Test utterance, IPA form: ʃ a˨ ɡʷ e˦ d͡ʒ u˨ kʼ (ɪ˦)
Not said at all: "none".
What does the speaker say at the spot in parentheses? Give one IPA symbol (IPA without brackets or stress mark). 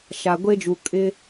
ɪ˦